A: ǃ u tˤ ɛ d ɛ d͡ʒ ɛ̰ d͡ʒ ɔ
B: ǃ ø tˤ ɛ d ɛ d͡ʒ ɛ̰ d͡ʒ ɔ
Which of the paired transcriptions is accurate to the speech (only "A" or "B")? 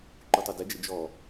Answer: A